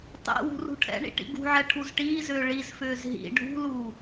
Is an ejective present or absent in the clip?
absent